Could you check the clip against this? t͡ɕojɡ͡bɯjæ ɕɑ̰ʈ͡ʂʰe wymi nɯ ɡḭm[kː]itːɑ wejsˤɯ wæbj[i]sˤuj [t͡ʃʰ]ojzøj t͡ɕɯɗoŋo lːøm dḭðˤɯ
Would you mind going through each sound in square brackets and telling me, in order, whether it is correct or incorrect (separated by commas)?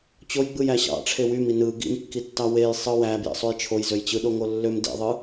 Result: correct, incorrect, correct